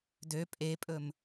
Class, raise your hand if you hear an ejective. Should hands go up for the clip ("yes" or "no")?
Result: yes